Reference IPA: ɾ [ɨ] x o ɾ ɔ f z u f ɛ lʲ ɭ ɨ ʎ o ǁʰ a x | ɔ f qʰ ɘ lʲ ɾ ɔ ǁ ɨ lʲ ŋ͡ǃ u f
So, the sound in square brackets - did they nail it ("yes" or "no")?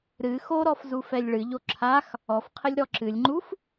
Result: yes